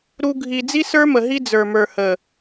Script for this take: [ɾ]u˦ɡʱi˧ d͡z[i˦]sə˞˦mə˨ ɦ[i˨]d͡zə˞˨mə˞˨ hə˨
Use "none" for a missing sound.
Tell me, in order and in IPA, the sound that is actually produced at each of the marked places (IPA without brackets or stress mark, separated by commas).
ɾ, i˦, i˦